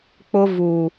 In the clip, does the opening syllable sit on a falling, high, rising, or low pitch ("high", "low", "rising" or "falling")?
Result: high